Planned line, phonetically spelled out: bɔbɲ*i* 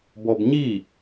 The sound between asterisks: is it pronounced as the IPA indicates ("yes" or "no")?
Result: yes